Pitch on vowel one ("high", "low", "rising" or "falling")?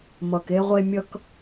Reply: low